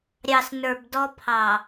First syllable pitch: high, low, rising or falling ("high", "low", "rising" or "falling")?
low